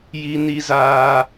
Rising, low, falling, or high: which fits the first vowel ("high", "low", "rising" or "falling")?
high